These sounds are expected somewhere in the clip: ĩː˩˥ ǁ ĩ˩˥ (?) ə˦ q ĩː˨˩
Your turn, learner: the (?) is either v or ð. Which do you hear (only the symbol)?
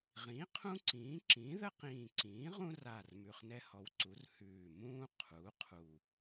ð